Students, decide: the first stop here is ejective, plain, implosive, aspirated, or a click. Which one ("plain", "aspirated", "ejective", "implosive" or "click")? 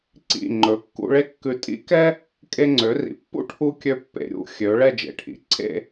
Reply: click